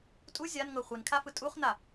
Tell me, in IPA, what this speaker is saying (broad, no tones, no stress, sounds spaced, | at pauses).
tʼ u zʲ a n ŋ ɤ χʷ i n kʰ a f ɯ tʼ u χ n a